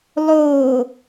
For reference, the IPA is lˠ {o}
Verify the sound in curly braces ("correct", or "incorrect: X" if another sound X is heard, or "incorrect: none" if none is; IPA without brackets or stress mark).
correct